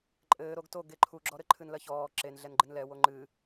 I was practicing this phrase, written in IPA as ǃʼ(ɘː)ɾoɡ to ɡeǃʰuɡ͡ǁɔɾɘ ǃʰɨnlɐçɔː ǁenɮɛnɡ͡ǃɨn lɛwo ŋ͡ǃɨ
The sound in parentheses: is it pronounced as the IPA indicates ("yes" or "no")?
yes